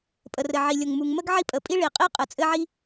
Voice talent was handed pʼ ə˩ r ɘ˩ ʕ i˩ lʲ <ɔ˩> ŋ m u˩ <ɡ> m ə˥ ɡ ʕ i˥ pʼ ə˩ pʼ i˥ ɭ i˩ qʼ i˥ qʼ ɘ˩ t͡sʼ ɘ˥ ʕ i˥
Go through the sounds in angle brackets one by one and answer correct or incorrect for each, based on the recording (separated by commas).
incorrect, incorrect